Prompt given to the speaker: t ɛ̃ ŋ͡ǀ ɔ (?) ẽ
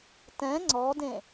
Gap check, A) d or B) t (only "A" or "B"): A